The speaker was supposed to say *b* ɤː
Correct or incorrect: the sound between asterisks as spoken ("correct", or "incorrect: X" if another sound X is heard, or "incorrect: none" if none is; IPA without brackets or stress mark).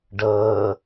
incorrect: ɖ